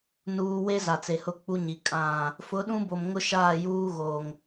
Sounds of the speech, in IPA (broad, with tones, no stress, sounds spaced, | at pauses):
n uː˨ w e˦ z a˨ t͡s e˨ h ʊ˦˨ k͡p u˦ ɲ i˨ kʼ ã˦˨ | f ʊ˨˦ ɗ ũ˦ b o˨ m ŋ ʊ˦ ʃ aː˦˨ j uː˦ ɣ o˨ ŋ